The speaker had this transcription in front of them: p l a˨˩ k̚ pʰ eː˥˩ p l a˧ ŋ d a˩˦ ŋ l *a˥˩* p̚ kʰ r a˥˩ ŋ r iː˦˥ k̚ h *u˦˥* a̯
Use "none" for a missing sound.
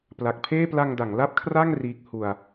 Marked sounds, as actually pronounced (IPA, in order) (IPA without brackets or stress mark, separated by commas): a˥˩, u˧